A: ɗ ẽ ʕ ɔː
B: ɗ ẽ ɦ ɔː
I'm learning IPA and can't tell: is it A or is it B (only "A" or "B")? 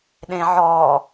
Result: A